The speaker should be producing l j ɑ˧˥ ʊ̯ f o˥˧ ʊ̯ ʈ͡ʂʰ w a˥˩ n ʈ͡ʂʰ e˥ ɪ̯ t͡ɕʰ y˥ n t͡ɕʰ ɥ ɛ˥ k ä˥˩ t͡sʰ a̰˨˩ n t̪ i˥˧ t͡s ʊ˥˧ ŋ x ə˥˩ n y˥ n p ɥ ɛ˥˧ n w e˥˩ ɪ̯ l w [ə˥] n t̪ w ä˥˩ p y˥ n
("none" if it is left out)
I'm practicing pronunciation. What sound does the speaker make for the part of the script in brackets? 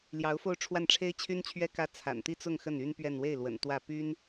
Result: ə̰˨˩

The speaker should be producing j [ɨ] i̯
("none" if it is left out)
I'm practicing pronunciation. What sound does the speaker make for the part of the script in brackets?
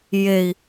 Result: e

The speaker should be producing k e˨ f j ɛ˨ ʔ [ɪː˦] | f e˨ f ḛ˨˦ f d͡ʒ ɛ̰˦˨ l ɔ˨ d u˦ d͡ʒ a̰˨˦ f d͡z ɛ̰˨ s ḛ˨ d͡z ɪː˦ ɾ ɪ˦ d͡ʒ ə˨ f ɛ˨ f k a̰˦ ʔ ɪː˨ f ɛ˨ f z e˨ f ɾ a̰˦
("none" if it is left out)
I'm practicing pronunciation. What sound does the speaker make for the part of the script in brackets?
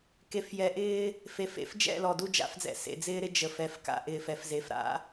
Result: ɪː˦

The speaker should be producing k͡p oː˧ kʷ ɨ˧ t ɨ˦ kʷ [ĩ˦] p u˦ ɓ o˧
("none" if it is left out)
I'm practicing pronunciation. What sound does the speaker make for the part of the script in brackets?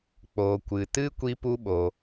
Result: i˦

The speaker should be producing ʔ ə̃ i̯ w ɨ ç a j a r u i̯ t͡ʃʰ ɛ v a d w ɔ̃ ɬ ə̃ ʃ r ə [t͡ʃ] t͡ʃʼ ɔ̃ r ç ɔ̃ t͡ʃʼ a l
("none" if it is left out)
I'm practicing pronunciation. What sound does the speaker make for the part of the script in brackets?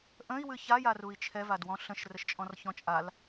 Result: ʃ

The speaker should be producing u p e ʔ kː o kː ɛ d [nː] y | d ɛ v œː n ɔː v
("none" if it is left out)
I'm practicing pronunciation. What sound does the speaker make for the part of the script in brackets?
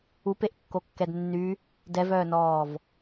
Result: nː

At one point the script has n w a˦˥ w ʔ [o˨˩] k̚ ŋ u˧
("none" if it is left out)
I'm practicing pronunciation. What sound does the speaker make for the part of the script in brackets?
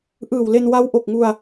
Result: o˨˩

